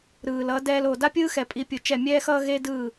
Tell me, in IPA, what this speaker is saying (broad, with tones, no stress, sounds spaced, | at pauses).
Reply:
ɾ ɯː˨ l ʌ˨˦ d ɛː˧ l o˨ d a˦ pʲ ɯː˦ x ɛ˨ pʼ i˧ pʲ u˨ t͡ʃ ɛ˦˨ mʲ ɛː˦ x ʌː˦ ɣ e˦ d ɯː˦˨